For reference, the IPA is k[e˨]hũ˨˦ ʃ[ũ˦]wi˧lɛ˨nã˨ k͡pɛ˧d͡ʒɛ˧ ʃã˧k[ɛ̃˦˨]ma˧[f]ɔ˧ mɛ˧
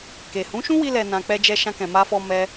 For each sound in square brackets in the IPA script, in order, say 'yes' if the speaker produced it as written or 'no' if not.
yes, yes, no, yes

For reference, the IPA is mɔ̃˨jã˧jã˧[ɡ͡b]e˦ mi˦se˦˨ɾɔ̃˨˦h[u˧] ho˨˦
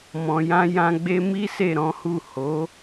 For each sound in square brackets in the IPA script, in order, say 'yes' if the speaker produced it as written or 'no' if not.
yes, no

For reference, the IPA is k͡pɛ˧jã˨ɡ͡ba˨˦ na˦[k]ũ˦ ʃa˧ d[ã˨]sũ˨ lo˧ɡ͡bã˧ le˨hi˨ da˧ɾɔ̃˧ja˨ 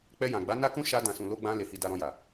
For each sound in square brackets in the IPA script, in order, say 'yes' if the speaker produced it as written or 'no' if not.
yes, yes

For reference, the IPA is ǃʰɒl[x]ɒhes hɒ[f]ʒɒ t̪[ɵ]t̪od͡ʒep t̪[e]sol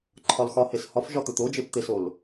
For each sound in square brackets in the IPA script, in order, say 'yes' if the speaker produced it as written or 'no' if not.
yes, yes, yes, yes

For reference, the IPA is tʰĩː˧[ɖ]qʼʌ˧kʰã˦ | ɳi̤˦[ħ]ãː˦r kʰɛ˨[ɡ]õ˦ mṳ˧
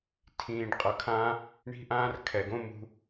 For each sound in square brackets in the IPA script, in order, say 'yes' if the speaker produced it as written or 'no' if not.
yes, no, yes

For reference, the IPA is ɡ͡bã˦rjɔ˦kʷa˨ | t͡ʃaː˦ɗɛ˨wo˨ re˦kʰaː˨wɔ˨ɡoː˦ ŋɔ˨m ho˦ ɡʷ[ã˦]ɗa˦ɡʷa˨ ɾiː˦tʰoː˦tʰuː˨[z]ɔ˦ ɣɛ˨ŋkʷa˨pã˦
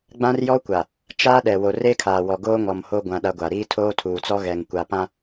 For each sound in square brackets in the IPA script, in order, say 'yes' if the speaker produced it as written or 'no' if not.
yes, no

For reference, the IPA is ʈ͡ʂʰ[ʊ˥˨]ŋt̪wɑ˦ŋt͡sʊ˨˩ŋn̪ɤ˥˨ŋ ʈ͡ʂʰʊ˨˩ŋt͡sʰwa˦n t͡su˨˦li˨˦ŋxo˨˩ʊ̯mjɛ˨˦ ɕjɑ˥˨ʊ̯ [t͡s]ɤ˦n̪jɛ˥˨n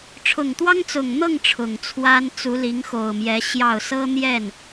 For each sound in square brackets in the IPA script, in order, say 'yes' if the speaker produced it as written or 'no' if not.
no, no

